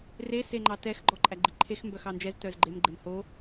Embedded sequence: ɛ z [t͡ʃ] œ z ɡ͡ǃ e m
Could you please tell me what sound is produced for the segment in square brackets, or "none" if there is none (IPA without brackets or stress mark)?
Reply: t